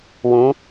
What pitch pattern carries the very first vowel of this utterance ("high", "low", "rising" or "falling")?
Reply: rising